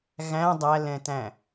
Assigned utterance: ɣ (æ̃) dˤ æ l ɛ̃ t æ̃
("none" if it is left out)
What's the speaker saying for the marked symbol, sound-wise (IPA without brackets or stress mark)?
æ̃